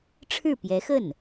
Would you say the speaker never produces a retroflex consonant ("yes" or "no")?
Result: no